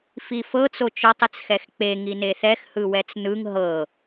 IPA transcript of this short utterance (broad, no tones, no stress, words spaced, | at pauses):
fifɤ t͡sot͡ʃɔtˤ et͡sxɛxk͡pe ŋineθɛx hɯwɛt͡snɯŋ ɦɤ